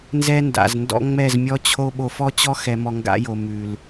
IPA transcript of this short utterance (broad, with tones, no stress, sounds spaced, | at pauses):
n z ɛ˦ n d a̰˨ z n d ɔ̰˦ ŋ͡m ɛ˦˨ z mʲ ɔ˦ t͡ɕʰ o˦ ɓ o˧ f ɔ˦ t͡ɕ ɔ˦ x ɛ˨ m ɔ˨ ŋ ɡ a̰˧ j o˨ m ʉ˨ l